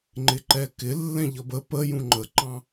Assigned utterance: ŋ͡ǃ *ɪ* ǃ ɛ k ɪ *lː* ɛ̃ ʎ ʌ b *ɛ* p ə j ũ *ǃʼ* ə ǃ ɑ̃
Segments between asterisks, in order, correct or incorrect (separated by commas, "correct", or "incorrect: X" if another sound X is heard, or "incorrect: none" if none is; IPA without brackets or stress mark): correct, correct, incorrect: ə, incorrect: ŋ͡ǃ